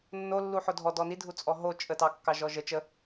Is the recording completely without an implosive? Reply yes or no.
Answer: yes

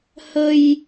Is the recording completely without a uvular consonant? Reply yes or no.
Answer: yes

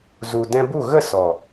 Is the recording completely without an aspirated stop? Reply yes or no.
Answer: yes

